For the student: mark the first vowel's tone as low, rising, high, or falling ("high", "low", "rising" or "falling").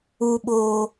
low